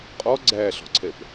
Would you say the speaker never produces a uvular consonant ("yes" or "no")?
no